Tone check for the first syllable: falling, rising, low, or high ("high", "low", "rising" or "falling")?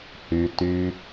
low